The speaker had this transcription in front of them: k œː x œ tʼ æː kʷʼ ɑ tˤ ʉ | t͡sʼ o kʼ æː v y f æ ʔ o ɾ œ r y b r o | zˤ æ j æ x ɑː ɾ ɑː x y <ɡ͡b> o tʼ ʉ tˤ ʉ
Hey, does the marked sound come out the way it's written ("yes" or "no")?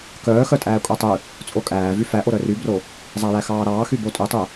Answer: no